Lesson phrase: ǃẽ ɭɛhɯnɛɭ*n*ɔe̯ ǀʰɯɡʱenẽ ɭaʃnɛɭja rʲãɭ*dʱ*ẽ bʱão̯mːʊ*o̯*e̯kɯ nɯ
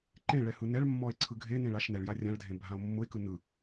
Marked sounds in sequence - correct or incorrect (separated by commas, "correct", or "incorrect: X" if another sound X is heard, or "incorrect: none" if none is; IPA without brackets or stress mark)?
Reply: incorrect: mː, correct, incorrect: none